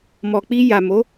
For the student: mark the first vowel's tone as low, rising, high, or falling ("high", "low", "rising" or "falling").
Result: low